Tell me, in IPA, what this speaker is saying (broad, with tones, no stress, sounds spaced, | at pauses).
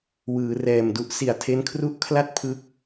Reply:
w ɯː˩˦ r ɛː˨˩ m d u˦˥ ʔ s i˨˩ a̯ tʰ e˦˥ n kʰ r u˦˥ ʔ kʰ l a˥˩ t̚ pʰ ɯ˦˥ k̚